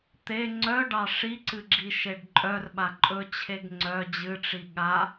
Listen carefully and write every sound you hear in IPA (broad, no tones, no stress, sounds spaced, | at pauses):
t̪ e ŋ͡ǀ œ ɖ ɑ ʂ i ǀ ɨ ɡ͡ǁ i ʃ e ɖ ǃʼ œ r ɓ a ǃʼ ɵ t͡ɕʰ e ɡ ŋ͡ǀ œ d͡ʑ ɨ ʈ͡ʂ i ɠ a